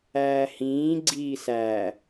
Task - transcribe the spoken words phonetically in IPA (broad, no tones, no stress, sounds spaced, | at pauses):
æː h ĩː ɡ͡ǀ iː s æ